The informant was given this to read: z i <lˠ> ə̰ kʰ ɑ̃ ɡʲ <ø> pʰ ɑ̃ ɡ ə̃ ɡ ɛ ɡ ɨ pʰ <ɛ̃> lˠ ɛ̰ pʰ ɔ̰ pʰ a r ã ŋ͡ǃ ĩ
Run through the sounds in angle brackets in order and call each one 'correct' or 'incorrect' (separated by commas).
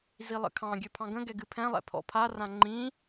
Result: correct, correct, correct